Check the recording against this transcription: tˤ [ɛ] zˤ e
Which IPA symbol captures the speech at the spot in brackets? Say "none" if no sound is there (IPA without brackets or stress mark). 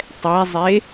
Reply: ɛ